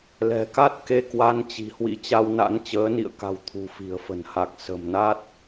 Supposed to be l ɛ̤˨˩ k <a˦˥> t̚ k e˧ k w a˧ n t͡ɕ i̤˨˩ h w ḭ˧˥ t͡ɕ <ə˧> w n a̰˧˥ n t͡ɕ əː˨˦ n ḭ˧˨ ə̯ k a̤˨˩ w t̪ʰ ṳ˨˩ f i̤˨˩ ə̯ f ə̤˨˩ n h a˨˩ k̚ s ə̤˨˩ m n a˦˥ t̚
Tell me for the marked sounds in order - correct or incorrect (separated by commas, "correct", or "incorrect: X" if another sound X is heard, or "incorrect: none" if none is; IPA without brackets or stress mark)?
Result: correct, incorrect: a˧